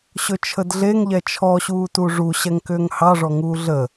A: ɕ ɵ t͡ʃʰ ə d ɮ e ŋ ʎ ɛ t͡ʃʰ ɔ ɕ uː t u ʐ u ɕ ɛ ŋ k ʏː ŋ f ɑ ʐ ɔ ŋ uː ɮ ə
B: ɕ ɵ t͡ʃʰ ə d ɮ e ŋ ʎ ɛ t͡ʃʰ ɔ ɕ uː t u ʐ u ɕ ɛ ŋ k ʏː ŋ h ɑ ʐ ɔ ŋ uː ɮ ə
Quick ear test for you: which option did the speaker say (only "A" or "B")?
B